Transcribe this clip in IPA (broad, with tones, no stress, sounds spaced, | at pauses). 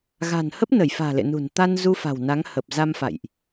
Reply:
ɣ a̤˨˩ n h ə˦˥ p̚ n ə˧˩ j f a̤ː˨˩ l ḛ˧˨ n ṳ˨˩ n t̪ a˧ n z u˧ f a̤˨˩ w n a˨˦ ŋ h ə˨˩ p̚ z a˧ m f a̰˧˨ j ʔ